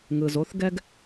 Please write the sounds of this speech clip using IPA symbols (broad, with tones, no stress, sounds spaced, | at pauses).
ŋ ɯ˩ z o˩˧ θ ɡ ɛ˧ ɡ